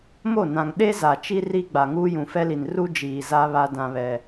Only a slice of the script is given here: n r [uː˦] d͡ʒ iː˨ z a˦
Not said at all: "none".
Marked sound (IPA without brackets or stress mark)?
u˦